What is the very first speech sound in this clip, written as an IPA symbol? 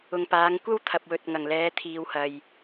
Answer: ʊ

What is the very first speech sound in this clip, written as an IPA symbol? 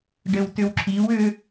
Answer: ɖ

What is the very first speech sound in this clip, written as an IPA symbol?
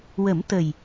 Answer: w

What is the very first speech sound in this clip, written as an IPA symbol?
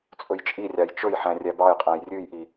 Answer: t͡sʼ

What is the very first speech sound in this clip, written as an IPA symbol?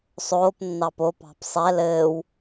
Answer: sˤ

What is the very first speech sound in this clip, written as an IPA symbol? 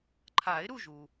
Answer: ǃʰ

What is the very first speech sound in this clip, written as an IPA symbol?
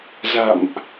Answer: z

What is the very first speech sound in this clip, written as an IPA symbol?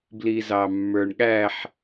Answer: b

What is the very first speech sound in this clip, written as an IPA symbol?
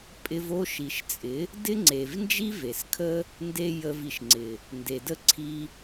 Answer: pʼ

